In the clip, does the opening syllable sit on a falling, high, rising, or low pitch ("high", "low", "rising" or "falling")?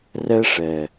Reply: high